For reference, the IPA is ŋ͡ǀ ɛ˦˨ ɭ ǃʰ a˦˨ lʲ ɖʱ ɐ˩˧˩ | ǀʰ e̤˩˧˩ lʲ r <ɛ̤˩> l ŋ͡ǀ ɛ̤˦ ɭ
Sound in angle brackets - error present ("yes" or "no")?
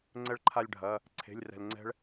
no